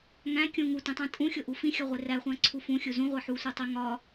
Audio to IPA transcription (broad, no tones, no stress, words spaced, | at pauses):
ŋæ̃ kʲũ ŋutĩtˤæ̃ tʼũxʲoʔu fĩxʲɒʁʷe ræχʷæ̃ǀʰu fũxʲu zũʁʷe ħusʷetˤe ŋɒ